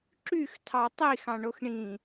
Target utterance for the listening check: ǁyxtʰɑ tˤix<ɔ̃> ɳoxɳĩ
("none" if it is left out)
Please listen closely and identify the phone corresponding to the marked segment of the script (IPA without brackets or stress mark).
ɑ̃